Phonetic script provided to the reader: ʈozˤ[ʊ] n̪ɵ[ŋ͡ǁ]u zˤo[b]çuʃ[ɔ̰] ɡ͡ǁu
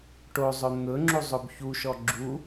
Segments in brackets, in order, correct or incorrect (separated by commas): incorrect, correct, correct, incorrect